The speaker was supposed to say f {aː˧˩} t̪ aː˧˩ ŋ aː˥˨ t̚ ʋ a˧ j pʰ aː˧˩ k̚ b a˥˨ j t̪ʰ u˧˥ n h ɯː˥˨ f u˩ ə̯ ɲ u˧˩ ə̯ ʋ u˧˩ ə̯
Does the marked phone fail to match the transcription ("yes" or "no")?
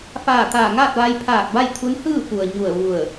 no